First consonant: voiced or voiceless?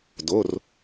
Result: voiced